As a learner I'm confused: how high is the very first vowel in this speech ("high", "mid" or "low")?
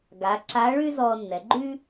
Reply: low